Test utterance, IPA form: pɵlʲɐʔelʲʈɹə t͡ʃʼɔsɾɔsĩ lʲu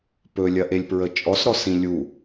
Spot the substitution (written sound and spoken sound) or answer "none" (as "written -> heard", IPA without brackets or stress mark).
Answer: ʈ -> p